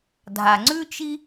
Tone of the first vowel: low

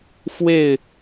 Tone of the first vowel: falling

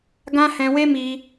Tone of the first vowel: high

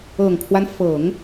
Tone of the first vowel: low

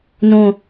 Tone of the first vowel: low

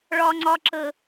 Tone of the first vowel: high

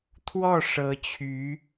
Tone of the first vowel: falling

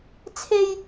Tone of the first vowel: high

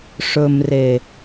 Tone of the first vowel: low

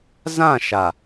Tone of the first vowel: falling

